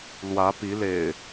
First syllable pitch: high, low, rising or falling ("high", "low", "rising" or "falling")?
rising